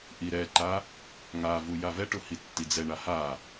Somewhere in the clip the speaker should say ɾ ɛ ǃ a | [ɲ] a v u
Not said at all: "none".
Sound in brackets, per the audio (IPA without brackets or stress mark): ŋ